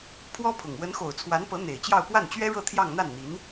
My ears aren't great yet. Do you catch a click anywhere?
no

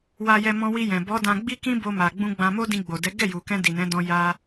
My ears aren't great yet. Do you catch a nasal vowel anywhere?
yes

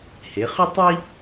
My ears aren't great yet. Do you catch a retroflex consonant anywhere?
no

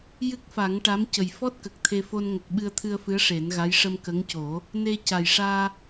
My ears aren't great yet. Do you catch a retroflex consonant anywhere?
yes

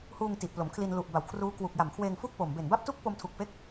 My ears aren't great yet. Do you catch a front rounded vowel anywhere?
no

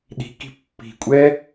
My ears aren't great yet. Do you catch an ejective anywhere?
yes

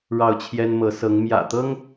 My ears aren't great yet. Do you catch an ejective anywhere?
no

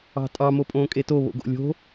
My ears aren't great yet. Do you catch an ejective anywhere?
yes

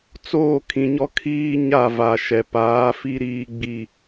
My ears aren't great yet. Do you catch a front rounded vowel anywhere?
no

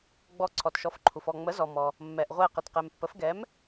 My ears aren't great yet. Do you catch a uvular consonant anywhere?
yes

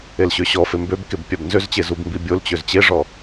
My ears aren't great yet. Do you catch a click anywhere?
no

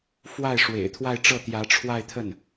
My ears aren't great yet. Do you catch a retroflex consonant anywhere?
yes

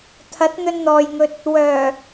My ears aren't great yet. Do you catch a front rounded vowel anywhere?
yes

